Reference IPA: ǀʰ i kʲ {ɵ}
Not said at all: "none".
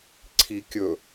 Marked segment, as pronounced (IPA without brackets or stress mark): ɵ